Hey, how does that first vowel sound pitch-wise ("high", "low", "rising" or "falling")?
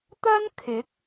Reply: high